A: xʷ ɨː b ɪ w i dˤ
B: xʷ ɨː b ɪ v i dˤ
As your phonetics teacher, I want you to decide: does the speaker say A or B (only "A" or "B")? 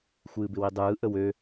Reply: A